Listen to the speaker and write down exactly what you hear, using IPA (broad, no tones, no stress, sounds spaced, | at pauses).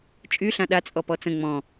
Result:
t͡ʃʼ y ɬ ã ɗ a t͡sʼ ɔ p ɔ t͡s ə̃ ŋ͡m ɔ̃